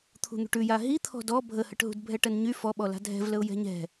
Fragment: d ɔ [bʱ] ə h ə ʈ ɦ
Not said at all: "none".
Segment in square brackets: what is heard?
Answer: bʱ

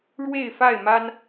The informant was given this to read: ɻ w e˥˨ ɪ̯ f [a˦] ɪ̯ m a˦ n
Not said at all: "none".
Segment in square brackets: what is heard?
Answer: a˥˨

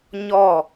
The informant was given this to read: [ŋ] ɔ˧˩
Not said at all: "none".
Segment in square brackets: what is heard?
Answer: ɲ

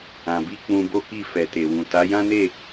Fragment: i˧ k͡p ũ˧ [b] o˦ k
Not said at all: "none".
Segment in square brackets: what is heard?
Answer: b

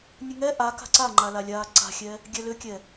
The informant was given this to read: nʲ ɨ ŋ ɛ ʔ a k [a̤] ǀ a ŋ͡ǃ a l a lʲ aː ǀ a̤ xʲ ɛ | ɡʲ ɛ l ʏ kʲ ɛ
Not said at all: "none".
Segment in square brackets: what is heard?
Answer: a̤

